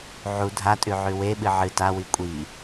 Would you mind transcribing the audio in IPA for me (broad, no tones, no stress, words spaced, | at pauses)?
ʕu dʱatʼʉ ʕʉweɓɨ ʕɨ tawi kʷʼi